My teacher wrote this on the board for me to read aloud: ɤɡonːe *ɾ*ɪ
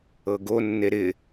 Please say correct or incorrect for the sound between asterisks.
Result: correct